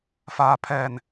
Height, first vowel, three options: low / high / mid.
low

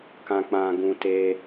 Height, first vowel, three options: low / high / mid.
low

